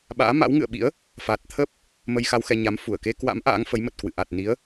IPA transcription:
ɓa̰ː˧˥ma̰˧˥wŋɨ̰˧˨ə̯ɓḭ˧˥ə̯ | fa˨˩t̚t̪ʰə˦˥p̚ | mə˧jxa˧wxɛ˧ ɲa˨˦mfu˧˩ə̯ ke˧kwa̰˧˥m ʔa̰ː˧˥ŋfə˨˦jmə˨˩t̚kwɨ̰˧˨ ʔa˨˩t̚ni˨˦ə̯

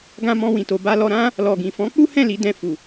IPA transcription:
ɡã˧mɔ̃˧wĩ˨ to˨ba˧ lɔ˧ɾã˦ | lɔ˨ɡĩ˨ fɔ̃˨˦k͡pu˦hɛ̃˦˨ li˨˦dɛ̃˧fu˨

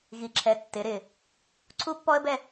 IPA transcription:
ɣi˩˧ǁʰɛ˩˧ tːɪ˩˧ɾɪ˧˩ | ǀʰu˥pːɔ˥ə̯bɛ˥˧

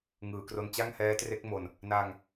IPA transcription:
ŋɯː˩˦kro˧nt͡ɕa˥˩ŋ hɛː˦˥tre˦˥k̚mo˧n | na˧ŋ

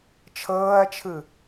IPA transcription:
t͡ʃʰɤːɐ̯t͡ʃʰɯ

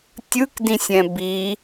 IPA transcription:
tʲɯkdĩsʲɛ̃ bi

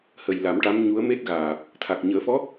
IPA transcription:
hə˨˩j la˨˩˦mʈa˧˥m ɲu˧˥ə̯me˦˥t̚ɣaː˨˩p̚ | t̪ʰa˨˩k̚ɲəː˨˩˦fɔ˧˥

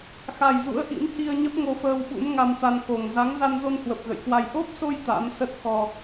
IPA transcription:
xa˨˩jzṵ˧˥ə̯ ʔḭ˧˥mhi˧ə̯ɲə˦˥p̚ ŋo˧fəː˧wɓṵ˧˥m ŋa˧mt̪a˧nko˨˩ŋ za˨˦ŋ za˧nzo˧nhwə˨˩p̚ ɣə̰˧˨jkwa˧j ʔo˦˥p̚so˧j t̪a̰˧˥m sə˦˥t̚ xɔ˧

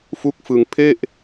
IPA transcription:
fu˦˥k̚fɯ˧ŋ pʰe˥˩ʔ

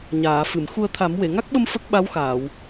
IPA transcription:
ɲaː˨˩˨fɨ˨˩˨m xu˨˩ə̯ t̪ʰa˨˩˦mwe˨˩˨ ŋa˦˥k̚ɓə˧m fə˦˥k̚ɓa˧˥wxaː˨˩˨w

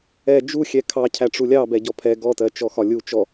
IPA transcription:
ɛ d͡ʒu xʲɛkʰɑcʰæ ʈ͡ʂulʲɑbɛ ɟɔpʰɛ ɡɔtɜ t͡ʃɔxɒlʲu t͡ʃɔ

